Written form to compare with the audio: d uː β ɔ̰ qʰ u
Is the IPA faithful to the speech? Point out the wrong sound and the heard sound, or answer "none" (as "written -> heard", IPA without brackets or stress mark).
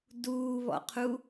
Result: none